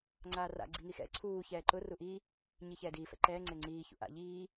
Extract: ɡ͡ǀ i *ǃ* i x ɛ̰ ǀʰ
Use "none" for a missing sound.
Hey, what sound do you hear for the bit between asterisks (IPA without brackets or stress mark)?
ŋ